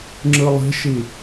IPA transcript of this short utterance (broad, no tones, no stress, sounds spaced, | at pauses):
ŋ͡ǁ ɯ lˠ i̤ ʃ i